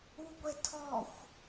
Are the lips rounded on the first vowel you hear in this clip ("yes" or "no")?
yes